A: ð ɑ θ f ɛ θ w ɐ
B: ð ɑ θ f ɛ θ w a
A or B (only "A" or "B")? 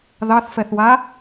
B